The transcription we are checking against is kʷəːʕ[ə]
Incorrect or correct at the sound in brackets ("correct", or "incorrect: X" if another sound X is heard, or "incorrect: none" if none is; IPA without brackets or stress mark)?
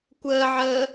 incorrect: əː